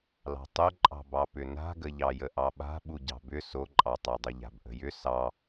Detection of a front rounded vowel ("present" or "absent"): present